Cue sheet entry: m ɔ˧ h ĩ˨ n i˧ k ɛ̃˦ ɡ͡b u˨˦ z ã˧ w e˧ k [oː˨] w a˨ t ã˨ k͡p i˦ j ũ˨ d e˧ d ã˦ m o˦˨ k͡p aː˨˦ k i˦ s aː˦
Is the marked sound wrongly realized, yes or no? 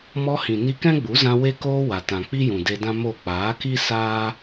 yes